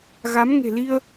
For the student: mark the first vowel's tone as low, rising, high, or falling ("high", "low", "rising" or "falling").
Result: rising